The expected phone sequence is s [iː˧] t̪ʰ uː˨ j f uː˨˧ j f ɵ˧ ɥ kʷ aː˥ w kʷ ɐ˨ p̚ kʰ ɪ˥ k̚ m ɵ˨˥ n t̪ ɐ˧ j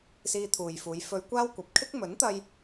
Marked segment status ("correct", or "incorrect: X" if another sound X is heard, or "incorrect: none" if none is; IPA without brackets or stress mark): correct